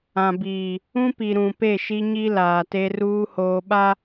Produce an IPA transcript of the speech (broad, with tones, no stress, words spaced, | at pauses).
ã˨biː˨ | ũ˦pi˨ ɾũ˨ pe˦˨ʃi˦ɲi˦ laː˨te˦ ruː˦hoː˨ɓa˦